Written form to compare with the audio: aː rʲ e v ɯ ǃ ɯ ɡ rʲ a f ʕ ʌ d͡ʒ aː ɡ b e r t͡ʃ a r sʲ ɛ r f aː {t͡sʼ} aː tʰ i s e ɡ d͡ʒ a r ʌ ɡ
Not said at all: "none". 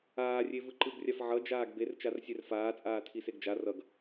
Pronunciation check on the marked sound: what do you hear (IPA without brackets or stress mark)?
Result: t͡sʼ